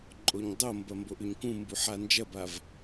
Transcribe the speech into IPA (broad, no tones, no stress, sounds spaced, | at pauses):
ǃʼ o ɲ dˤ o m b ɐ m b o ʔ ʉ ɲ k ũ m b u ħ a n d͡ʒ ɐ b a v